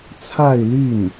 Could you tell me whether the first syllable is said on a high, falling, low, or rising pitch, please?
falling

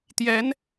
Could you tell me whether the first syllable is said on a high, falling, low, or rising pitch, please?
rising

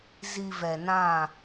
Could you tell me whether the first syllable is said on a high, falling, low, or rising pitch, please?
low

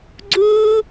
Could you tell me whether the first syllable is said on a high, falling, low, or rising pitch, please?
high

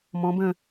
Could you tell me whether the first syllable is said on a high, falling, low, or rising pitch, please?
rising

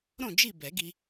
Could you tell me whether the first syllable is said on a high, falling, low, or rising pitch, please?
falling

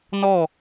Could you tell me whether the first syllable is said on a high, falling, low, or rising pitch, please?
falling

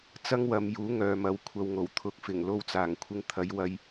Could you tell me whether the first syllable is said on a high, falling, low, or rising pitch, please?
high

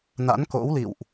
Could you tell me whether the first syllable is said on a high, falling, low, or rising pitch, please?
rising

